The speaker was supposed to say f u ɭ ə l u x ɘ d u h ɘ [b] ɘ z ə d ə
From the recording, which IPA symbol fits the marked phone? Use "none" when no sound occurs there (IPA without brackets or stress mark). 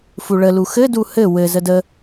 w